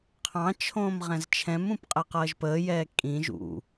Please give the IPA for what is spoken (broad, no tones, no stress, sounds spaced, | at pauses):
qʰ ɑ̃ t͡ʃʰ õː m ʁ ɛ̃ z t͡ʃʰ ɛ̃ m ũ p qʼ ɛ q ʌː ʒ p əː j ɛː kʼ ĩ ʒ ṵ